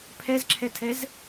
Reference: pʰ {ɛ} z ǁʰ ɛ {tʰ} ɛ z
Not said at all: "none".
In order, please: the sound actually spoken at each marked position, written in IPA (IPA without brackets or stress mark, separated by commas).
ɛ, tʰ